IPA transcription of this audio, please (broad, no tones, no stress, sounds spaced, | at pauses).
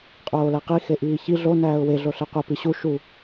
qʼ oː l æ q i x e ʔ iː ç i ɮ o n æː ʊ̯ w e ɮ o ɬ e qʷ e p i ɕ u ʃ u